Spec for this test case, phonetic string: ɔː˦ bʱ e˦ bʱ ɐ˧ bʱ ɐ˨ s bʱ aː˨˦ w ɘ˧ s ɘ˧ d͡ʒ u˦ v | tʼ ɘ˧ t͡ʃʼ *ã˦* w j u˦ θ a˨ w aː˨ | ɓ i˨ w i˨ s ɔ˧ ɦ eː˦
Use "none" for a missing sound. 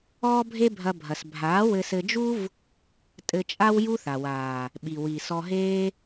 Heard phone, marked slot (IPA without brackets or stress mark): a˦